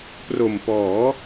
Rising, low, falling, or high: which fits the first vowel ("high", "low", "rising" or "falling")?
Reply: low